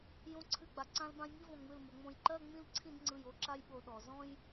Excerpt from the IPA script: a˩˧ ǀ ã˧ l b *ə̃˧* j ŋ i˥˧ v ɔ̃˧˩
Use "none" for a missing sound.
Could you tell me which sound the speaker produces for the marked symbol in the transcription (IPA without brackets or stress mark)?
ã˧